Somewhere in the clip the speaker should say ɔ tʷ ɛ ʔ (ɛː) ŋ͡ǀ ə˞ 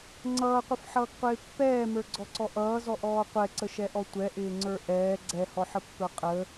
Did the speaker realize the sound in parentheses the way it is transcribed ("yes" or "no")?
no